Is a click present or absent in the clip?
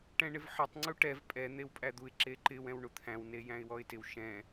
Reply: present